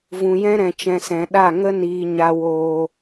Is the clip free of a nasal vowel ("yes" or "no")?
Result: no